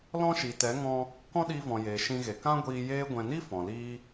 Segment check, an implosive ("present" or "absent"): present